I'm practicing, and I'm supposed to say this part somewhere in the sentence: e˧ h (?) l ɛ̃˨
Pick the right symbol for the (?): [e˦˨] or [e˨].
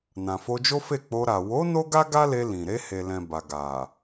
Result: e˨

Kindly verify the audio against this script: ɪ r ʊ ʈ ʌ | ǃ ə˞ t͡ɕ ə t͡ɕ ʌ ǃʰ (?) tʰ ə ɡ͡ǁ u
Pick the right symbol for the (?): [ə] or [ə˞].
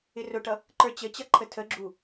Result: ə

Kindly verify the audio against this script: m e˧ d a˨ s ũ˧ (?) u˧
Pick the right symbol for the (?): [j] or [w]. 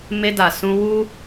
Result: w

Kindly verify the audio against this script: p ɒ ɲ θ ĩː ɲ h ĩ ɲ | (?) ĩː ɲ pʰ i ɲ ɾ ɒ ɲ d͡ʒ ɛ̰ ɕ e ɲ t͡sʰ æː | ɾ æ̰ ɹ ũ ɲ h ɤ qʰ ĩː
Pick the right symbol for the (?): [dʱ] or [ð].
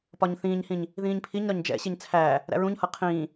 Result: ð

